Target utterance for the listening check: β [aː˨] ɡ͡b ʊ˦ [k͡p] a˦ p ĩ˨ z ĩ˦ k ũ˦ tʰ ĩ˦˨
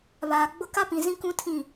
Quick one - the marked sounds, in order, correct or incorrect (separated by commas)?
correct, incorrect